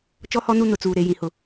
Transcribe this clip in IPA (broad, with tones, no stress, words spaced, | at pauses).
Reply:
t͡ʃɔ˦hɔ˦nu˦ nʊ˨t͡suː˨ ɾe˨ jĩ˨hʊ˨